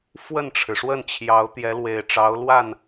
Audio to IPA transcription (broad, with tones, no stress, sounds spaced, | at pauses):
f w ə˥˩ n ʈ͡ʂʰ ɻ̩˩ ʂ w ə˥˩ n t͡ɕʰ j ɑ˧˥ ʊ̯ t̪ j ɛ˧˥ l w e˨˩ ɪ̯ ʈ͡ʂ ɑ˧˥ ʊ̯ l w a˥˩ n